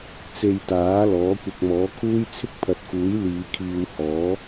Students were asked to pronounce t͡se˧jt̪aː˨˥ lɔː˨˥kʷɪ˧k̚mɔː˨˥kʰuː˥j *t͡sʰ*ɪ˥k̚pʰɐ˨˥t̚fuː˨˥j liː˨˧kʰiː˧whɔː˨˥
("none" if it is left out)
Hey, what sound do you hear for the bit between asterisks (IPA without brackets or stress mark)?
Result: t͡sʰ